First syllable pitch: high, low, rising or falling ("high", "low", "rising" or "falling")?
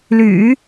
low